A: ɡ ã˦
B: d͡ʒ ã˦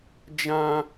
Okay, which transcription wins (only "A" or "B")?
B